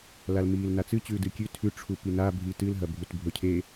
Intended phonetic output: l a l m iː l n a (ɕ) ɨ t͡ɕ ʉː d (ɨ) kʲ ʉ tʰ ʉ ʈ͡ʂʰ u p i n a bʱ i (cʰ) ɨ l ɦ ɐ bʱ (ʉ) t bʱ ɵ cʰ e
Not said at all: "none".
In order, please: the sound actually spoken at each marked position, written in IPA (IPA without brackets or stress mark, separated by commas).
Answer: t͡s, ɨ, t, u